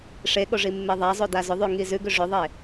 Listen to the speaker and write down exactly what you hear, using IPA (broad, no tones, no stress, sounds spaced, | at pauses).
ʂ e ɠ o ʐ i mː e ðˤ a zˤ o d a z ʏ ðˤ ʉ ŋ i z ʉ ɡ ʏ ʐ ʏ ðˤ e